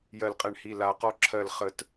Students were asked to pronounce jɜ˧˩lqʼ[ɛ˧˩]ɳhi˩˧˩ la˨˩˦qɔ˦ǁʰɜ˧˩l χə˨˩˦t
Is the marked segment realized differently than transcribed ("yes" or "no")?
no